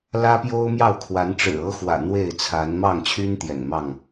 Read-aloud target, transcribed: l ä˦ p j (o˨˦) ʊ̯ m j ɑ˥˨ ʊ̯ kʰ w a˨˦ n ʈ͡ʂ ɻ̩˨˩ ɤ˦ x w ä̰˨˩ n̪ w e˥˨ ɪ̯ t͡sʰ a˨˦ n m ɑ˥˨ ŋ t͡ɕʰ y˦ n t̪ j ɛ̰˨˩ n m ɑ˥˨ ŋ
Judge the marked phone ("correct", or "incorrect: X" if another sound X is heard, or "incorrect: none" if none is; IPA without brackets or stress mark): incorrect: o˦